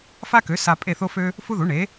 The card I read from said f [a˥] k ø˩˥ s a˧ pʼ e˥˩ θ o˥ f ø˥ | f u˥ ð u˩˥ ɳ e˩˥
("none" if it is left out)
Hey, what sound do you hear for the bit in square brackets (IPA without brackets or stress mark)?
a˥